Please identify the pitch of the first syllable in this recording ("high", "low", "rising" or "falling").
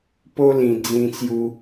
high